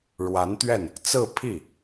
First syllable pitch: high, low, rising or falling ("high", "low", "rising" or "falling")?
rising